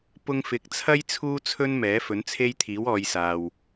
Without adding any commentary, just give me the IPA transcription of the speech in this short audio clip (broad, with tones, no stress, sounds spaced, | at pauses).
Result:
p ʊ˧ ŋ f ɪ˨˥ k̚ t͡sʰ ɐ˥ j t͡sʰ uː˥ t͡sʰ ɵ˥ n m ɛː˨˥ f ɵ˨˥ n t͡sʰ e˥ j t̪ʰ iː˨˥ w ɔː˨˧ j s aː˨ w